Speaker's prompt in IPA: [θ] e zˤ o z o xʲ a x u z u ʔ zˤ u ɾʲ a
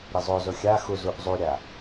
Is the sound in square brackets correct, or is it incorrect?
incorrect